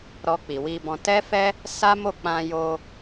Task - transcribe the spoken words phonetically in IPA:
ɾ ɔ˧ k͡p i˨ w i˧ b ɔ̃˧ t ɛ˦ f ɛ˦ | s a˦ m o˦˨ k͡p ã˧ j o˧

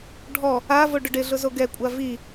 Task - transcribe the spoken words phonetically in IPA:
ɖʱ ɔ | a v o ɖ ʊ ɖ ɪ ɮ ʊ z o ɡ ɛ kʷʼ a v i

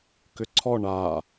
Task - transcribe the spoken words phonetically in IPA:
k ʏ ǀʰ ɔ ɳ a

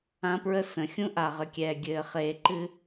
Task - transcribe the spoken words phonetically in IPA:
ã˦ p ɹ ə˦ s ə̃˨ xʲ ũ˦ ʔ a˨ ʁ ə˨ kʲ ɛː˨ ɡʲ ɘː˨ χ eː˨ ǃ ɨ˦

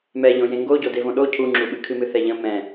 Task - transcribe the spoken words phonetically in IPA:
m ɛ ʎ õ j ẽ ŋ ɡ o ɟ o d e v õ ɗ o cʰ u ŋ͡ǁ u ɓ ɨ kʰ ɨ m ɨ θ ɛ ʎ ə̃ m ɛ̃

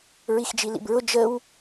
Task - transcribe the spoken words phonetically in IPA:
ɹ i x d͡ʒ i l ḭ b ɹ ʊ d͡ʒ ə w

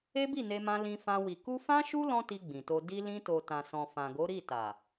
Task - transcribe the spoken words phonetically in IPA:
e˦ b i˦˨ n e˧ m ã˧ l ĩ˧ f ã˧ w i˨ k u˧ f ã˦ ʃ u˦ l ɔ̃˦ t i˧ ɡ͡b ĩ˨ t o˧ d i˧ l ĩ˧ t o˨ t ã˨ s ɔ̃˨ f ã˨ ɡ o˨˦ ɾ i˦˨ t a˨

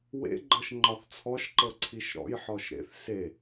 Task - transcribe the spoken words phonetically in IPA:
w ḛ ɡ͡ǃ ɤ ʃ ŋ͡ǃ ɒ θ t͡sʰ ɔ ʃ ǃ ɤ ǀʰ i ʃ ɾ ɔ̰ j ħ ɔ ʃ ɾ ḛ θ s e

